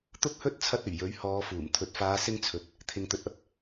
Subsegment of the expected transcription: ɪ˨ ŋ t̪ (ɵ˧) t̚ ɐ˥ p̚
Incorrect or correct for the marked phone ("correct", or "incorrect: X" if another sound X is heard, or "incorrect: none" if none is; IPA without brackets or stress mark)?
incorrect: ɵ˨